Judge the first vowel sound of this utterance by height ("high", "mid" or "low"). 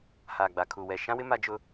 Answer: low